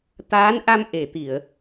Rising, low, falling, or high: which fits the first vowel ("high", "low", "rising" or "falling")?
rising